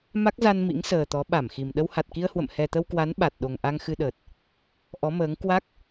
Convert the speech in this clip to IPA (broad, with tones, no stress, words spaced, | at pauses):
ma˦˥k̚za˧n mḭ˧˥ŋsəː˨˩t̪ɔ˨˦ ɓa˧˩mxi˨˩m ɗə˧wha˨˩t̚ki˧ə̯hwə̰˧˨m hɛ˨˩t̪ə˧wkwa˨˦n ɓa˨˩t̚ ɗo˨˩ŋʔa˧ŋxɨ˧ɗəː˨˩t̚ | ʔɔ˨˦məː˨˦ŋ kwa˦˥k̚